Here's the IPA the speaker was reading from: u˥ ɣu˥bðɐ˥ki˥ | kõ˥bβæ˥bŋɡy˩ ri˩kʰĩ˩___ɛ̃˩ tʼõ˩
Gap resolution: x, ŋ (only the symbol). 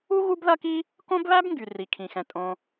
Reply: x